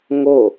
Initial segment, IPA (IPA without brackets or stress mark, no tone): ŋ